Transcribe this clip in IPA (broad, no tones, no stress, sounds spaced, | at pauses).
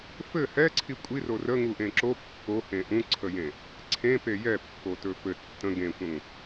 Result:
f ɘ h ɛ ǀʰ i kʷʼ i r o r ə ŋ u ʔ ẽ ǁ o pː o h ẽ ʔ ũ ǀʰ ə j ẽ | ǀʰ ẽ p e j ɛ pː o t ɵ f ɘ tː ə̃ ɡ ẽ kʷ ə̃ ŋ